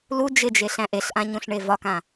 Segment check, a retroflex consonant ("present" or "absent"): present